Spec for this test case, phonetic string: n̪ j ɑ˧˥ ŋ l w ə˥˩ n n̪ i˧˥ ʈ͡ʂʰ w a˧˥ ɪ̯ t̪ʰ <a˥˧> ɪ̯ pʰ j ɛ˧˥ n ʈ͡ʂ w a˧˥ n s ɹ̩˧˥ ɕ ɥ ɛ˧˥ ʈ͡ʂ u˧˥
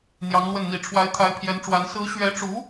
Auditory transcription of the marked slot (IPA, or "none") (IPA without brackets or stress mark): a˧˥